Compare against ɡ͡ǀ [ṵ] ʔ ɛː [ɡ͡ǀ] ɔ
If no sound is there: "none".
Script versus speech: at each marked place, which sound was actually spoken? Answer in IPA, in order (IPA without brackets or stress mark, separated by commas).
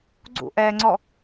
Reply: ṵ, ŋ͡ǀ